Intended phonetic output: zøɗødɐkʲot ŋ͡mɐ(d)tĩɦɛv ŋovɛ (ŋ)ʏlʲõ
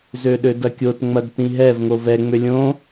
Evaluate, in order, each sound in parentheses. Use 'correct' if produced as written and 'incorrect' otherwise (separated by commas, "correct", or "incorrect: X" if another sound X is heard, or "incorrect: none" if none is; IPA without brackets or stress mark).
correct, incorrect: ŋ͡m